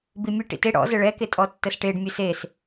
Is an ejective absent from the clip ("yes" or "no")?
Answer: no